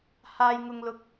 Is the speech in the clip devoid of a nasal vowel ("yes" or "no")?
yes